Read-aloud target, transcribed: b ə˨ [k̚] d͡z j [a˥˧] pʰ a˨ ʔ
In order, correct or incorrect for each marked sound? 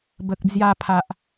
correct, incorrect

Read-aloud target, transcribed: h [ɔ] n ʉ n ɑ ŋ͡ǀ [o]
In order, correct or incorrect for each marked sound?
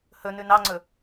incorrect, incorrect

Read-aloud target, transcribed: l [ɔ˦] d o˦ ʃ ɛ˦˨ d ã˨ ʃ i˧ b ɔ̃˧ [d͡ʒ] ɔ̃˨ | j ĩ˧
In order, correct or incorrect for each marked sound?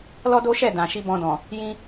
correct, incorrect

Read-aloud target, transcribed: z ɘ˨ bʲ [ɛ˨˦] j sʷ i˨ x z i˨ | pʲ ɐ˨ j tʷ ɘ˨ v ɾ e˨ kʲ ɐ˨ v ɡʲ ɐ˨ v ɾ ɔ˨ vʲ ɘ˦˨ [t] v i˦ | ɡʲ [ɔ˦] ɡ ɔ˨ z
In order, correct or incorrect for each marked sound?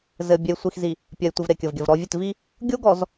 incorrect, correct, incorrect

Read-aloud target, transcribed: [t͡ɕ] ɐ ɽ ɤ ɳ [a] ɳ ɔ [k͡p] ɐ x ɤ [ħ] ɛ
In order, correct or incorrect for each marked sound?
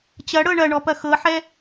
correct, incorrect, incorrect, correct

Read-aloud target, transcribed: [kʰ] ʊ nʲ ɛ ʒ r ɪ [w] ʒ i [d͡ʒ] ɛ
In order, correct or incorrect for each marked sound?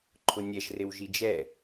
incorrect, correct, correct

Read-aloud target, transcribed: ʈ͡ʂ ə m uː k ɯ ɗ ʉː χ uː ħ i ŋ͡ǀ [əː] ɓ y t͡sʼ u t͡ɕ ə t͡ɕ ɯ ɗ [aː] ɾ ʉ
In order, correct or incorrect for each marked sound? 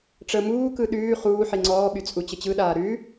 incorrect, correct

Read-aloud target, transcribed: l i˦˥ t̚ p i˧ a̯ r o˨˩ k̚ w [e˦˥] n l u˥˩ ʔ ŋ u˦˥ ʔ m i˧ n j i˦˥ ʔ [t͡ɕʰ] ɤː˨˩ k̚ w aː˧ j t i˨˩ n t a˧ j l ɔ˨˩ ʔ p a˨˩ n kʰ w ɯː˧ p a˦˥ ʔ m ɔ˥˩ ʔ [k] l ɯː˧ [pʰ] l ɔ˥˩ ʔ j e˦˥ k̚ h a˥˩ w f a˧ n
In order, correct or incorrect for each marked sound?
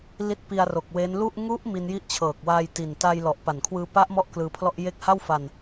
correct, correct, correct, correct

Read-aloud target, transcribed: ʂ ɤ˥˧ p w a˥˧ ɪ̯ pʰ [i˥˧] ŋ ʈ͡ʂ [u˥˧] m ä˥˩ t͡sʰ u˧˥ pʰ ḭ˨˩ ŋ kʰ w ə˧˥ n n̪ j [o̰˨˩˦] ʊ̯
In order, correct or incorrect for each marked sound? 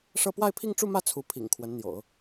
correct, correct, correct

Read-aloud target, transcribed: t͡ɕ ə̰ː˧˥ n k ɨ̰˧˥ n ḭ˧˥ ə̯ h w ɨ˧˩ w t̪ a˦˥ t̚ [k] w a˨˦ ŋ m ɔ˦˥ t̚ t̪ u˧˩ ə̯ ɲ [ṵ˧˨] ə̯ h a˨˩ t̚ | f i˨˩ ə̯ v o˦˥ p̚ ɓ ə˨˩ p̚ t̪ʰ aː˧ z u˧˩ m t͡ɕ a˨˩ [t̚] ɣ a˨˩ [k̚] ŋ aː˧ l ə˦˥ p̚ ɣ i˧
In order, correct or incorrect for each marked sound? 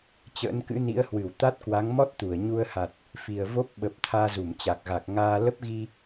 correct, incorrect, incorrect, correct

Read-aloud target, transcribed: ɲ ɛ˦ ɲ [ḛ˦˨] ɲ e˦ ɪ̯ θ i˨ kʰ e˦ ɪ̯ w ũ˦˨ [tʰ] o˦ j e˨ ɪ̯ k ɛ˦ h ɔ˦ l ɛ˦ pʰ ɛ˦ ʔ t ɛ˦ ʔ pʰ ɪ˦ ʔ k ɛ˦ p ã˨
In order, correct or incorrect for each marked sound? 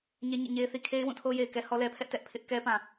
incorrect, correct

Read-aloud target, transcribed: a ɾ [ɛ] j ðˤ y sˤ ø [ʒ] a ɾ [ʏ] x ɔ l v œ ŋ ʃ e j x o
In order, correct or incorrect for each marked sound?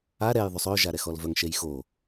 correct, correct, incorrect

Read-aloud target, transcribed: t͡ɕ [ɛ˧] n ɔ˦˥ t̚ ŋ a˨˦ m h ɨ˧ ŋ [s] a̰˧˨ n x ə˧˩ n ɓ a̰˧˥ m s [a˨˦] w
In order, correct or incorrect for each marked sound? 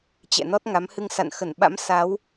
incorrect, correct, correct

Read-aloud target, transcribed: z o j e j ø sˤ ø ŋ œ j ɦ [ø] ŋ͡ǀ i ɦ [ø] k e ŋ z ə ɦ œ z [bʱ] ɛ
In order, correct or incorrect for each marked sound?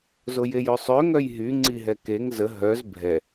incorrect, incorrect, correct

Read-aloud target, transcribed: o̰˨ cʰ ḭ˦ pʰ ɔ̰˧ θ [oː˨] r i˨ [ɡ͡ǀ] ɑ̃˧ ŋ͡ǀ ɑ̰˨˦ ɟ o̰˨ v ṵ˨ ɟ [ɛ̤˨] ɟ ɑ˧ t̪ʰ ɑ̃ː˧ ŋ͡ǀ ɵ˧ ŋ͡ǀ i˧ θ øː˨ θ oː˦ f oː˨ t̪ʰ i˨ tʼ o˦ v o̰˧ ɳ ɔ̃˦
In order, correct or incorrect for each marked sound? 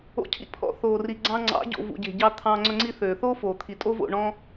correct, correct, incorrect

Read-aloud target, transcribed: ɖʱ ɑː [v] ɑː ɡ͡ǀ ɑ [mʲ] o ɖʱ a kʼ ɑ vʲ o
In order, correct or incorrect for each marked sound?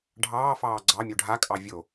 incorrect, correct

